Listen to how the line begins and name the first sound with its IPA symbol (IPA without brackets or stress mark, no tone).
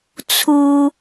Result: t͡sʰ